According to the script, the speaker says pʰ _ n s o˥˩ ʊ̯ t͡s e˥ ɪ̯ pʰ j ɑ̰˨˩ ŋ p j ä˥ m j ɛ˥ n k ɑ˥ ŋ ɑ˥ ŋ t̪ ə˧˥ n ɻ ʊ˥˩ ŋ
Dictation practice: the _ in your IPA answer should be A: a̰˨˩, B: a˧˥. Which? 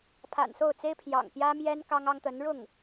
A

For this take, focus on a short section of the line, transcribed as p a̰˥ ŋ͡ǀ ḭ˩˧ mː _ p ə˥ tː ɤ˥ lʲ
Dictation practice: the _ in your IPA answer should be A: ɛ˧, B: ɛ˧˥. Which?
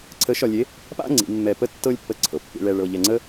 A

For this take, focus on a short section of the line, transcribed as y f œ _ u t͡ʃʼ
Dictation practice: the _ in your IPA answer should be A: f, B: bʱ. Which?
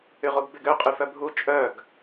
B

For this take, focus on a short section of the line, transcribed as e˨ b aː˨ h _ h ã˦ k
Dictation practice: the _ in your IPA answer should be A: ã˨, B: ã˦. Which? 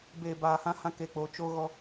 B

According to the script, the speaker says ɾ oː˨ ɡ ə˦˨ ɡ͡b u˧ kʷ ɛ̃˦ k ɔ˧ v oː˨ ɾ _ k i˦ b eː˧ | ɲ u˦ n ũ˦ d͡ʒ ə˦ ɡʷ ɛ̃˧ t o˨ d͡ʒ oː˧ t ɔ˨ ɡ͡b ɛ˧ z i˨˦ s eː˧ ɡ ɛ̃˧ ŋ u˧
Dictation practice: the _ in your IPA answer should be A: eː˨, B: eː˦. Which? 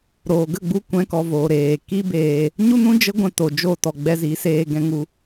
A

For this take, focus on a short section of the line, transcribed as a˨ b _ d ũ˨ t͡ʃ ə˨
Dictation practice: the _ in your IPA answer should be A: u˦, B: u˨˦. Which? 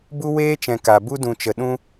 A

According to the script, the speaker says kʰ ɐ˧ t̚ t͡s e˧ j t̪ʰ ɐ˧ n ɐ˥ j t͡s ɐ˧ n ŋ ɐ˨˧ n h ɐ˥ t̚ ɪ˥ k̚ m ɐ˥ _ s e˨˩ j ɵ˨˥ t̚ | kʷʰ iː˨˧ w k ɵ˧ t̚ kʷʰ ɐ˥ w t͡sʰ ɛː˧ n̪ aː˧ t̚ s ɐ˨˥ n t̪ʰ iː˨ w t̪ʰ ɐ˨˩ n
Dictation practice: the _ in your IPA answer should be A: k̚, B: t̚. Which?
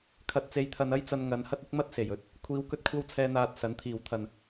B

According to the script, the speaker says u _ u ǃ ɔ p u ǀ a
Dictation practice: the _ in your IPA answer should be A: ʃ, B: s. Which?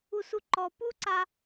B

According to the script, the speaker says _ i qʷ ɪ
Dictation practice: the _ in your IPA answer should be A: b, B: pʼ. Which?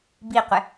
A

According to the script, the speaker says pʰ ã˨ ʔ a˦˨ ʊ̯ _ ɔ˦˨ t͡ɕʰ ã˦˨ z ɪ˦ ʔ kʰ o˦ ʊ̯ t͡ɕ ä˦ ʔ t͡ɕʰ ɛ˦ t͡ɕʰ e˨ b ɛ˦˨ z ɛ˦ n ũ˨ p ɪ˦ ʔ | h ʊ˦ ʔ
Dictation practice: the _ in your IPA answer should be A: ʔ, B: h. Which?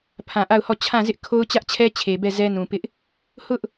B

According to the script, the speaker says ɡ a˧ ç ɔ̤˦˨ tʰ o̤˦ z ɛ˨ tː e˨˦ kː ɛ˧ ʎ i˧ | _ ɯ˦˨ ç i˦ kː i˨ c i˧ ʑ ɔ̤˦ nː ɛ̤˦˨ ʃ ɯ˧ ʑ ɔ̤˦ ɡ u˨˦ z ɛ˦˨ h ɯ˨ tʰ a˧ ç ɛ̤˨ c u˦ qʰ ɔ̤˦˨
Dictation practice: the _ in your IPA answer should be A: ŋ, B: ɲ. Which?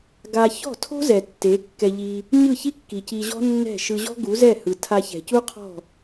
B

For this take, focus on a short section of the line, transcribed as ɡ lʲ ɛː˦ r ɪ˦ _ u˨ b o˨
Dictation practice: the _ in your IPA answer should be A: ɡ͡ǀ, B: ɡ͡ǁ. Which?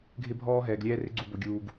A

